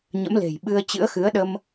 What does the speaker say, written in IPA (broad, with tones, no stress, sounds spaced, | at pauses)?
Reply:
ɲ ə̰˧˥ m l e̤˨˩ j ɓ ɨ˧ ə̯ t͡ɕ ɨ̰˧˥ ə̯ x ɨ˨˦ ə̯ ɗ ə˧ m